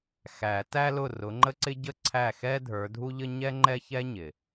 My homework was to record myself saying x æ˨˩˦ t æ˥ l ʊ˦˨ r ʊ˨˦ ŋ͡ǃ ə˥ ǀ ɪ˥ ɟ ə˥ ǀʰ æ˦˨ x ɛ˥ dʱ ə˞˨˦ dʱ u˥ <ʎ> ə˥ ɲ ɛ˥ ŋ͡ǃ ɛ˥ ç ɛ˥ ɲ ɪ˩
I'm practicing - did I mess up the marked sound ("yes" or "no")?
no